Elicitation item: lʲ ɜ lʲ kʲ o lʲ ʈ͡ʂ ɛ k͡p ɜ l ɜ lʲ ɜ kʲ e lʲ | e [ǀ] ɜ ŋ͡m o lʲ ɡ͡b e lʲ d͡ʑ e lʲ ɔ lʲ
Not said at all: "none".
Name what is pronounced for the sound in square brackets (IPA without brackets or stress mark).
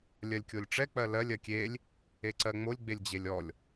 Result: ǀ